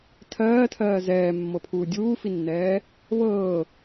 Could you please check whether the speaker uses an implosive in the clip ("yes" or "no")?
no